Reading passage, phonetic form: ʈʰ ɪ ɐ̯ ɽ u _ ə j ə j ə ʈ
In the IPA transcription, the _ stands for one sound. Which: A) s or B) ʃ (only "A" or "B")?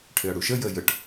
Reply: B